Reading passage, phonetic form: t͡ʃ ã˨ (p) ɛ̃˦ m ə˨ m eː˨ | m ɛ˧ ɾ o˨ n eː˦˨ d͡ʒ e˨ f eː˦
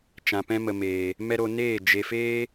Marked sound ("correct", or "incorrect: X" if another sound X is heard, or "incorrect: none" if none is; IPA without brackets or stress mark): correct